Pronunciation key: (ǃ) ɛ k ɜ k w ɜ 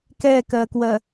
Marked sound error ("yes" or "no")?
yes